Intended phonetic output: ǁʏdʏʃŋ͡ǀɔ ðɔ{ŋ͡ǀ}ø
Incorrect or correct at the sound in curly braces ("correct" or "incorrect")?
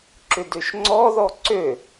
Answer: incorrect